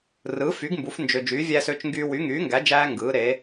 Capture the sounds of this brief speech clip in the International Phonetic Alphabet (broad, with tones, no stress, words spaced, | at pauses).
rɯː˨˥fy˨˥ɡ mbu˨˥f nd͡ʒø˦ d͡ʒyː˨˥vʲæː˦sø˨˥t͡ʃŋɡyː˦ wy˨˥ŋyː˨˥ŋɡæ˨˥d͡ʒæː˦ ŋɡɯː˨˥ɾe˨˥